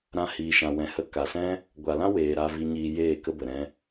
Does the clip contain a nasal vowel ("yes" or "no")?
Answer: yes